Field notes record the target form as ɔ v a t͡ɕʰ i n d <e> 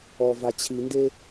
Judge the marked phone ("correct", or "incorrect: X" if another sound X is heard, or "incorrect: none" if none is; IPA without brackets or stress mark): correct